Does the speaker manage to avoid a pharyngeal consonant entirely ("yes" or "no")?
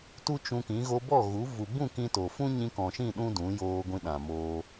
yes